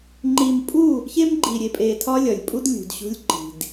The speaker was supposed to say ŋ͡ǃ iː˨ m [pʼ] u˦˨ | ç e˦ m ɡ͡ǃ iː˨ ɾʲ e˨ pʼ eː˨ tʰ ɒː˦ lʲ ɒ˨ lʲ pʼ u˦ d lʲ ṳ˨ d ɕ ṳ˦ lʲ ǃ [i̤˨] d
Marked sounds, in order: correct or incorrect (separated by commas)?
correct, correct